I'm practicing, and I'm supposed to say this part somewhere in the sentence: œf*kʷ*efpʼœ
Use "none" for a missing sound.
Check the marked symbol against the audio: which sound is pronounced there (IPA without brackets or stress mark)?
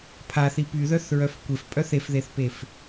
kʷ